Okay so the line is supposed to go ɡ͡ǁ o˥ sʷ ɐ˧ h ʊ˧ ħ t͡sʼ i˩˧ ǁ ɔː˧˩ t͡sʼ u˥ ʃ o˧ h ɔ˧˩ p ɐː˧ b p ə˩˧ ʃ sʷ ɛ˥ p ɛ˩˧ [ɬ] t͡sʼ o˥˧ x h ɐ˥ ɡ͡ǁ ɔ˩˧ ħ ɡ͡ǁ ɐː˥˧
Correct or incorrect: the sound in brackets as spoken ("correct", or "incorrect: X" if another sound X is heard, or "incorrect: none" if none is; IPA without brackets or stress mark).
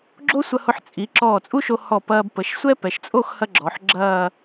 incorrect: ʃ